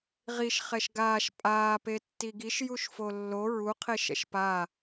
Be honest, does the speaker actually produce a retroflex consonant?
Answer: no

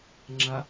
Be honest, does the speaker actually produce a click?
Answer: yes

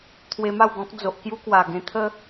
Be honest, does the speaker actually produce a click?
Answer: no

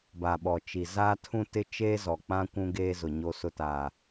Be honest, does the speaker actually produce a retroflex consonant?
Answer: no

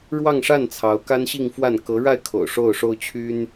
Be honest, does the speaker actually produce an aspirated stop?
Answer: yes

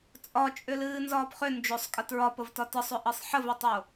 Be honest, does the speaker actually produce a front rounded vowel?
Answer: yes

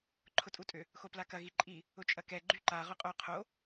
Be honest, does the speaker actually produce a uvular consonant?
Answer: yes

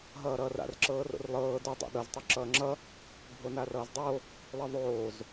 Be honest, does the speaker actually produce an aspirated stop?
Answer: no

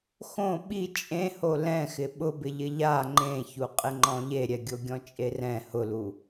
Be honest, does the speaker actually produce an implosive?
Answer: yes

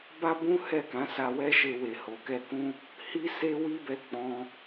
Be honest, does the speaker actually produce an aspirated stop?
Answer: no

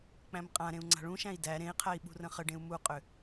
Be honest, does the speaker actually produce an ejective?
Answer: yes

